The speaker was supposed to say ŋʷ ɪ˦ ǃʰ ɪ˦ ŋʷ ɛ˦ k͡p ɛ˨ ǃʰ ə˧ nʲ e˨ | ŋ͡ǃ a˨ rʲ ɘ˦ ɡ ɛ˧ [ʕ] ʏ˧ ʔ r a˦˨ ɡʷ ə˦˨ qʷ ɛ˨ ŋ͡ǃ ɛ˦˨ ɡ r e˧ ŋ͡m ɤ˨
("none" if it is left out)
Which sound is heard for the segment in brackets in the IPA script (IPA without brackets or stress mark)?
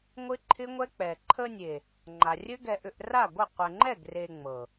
ʔ